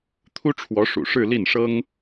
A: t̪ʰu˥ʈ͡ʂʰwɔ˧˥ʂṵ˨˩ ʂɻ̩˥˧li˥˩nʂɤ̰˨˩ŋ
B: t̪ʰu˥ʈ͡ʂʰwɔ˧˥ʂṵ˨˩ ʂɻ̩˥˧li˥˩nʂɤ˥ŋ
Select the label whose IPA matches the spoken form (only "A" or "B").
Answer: B